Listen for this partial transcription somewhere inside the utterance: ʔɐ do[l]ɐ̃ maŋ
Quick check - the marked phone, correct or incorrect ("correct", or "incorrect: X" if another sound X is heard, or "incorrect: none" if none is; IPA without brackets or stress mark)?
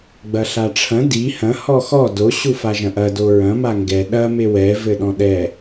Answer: incorrect: ɹ